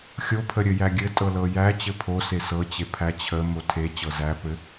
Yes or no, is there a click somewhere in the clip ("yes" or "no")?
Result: no